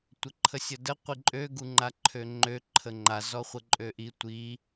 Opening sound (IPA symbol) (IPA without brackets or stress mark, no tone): tʷ